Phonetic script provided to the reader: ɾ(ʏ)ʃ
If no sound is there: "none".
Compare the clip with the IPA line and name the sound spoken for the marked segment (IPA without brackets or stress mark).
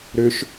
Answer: ʏ